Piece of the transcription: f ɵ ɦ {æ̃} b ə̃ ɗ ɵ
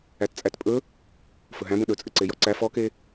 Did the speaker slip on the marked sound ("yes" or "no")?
no